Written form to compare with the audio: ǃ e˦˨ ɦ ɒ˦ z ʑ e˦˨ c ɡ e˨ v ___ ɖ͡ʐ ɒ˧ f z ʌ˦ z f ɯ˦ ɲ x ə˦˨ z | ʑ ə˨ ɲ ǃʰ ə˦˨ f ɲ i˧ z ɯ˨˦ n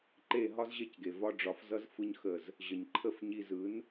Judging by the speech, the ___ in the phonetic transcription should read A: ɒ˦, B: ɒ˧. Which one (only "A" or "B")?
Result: A